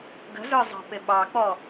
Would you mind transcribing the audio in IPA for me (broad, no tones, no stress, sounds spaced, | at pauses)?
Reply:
ɡ ə̤ z ə˞ zˤ ɑ̤ p ɪ ɓ ɑ k͡p ɔ